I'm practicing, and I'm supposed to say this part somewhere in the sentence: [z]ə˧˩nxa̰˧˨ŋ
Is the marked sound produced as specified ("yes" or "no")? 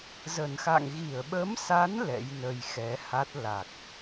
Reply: yes